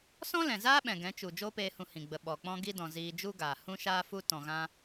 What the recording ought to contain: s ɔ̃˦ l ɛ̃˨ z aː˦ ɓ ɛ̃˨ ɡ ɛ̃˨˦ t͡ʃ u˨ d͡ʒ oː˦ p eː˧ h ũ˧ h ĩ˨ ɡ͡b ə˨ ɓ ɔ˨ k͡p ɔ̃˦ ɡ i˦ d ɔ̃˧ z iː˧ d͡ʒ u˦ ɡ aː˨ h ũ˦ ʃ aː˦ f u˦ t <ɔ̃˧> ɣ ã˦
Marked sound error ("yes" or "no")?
no